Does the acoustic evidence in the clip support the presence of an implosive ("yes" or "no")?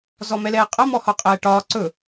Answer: no